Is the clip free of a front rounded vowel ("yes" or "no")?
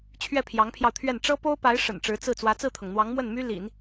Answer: no